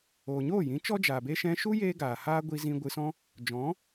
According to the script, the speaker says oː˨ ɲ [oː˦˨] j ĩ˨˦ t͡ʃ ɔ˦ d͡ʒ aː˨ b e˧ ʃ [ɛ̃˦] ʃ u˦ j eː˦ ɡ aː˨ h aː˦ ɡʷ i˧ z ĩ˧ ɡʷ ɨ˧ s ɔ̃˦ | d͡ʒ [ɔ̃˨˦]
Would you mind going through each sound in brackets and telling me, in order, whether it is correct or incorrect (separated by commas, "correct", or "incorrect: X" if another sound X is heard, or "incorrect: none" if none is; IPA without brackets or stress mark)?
correct, incorrect: ɛ̃˧, correct